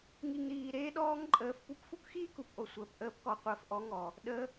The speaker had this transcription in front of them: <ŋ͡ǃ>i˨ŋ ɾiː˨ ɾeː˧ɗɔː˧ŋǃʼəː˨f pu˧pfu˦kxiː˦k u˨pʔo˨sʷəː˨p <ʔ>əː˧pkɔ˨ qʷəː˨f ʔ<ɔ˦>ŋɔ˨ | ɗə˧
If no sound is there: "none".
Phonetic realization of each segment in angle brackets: ŋ, ʔ, ɔ˨˦

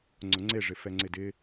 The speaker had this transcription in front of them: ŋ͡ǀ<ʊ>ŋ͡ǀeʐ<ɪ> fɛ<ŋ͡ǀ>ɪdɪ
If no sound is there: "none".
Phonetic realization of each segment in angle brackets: ʊ, ɪ, ŋ͡ǀ

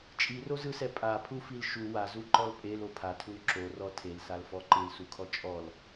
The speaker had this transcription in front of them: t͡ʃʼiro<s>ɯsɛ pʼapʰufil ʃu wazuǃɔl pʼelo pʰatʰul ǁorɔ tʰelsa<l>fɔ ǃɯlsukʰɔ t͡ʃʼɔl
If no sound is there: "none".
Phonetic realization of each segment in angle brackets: z, l

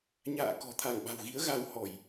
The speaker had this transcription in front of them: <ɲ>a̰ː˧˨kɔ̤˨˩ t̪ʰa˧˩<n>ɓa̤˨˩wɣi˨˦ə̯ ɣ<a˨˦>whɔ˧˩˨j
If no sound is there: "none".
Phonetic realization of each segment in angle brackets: ɲ, ŋ, a˧

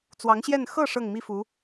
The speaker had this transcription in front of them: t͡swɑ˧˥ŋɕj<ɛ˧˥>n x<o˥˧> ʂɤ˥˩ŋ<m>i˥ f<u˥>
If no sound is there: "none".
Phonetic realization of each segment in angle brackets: ɛ˥˧, ɤ˥˧, m, u˧˥

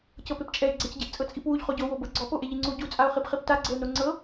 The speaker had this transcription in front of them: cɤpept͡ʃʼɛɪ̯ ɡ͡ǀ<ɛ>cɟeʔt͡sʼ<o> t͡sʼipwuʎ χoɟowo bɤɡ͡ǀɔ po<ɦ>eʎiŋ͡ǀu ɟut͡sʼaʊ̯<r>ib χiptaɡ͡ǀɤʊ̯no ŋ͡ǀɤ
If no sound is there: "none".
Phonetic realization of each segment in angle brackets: ɛ, ɤ, ʔ, χ

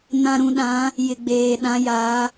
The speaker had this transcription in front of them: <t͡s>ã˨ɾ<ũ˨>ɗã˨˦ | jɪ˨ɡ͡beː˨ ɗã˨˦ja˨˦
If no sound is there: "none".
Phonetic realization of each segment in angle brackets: n, ũ˨

